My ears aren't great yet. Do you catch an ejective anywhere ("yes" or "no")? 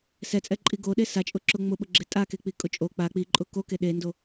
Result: yes